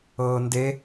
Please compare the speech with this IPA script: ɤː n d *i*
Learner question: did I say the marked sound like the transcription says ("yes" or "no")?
no